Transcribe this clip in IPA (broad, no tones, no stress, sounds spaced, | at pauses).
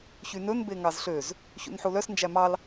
ç y n ɵ n b e ŋ ɑ z ɬ ø z | ç ṵ n ħ u l œ s n d͡ʒ æ m ɑ l